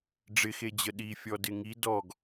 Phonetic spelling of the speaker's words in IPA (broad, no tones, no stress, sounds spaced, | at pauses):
ɖ͡ʐ ɪ x e d͡ʑ ə ɗ i fʲ ɔ d ɪ ŋ i d ɔ ɡ